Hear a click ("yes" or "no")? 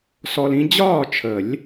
no